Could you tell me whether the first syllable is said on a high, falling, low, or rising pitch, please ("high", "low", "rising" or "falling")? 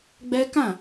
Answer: high